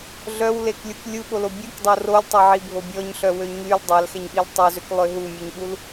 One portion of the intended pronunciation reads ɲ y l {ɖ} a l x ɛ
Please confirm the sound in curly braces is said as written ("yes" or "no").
no